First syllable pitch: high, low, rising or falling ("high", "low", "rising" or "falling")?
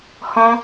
high